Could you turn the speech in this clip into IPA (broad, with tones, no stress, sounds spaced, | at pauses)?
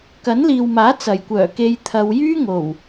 k ɐ˨˥ n l iː˨ w m aː˨˥ t͡s ɐ˨˩ j kʷ œː˨˩ k e˧ j t̪ʰ ɐ˨˧ w j yː˥ ŋ o˨˩ w